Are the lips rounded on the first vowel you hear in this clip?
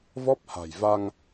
yes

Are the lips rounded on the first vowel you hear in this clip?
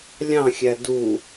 no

